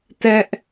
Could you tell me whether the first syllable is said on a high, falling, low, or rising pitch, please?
high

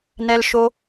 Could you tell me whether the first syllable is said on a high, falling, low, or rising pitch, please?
low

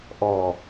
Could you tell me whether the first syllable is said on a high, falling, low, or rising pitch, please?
low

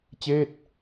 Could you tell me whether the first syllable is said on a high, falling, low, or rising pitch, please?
falling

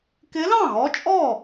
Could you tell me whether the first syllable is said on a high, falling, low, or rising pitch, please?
rising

